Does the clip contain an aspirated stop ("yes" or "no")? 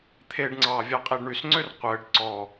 yes